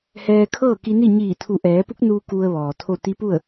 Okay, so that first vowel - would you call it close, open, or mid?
mid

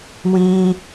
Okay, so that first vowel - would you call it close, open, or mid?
close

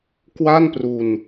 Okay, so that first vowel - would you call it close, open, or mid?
open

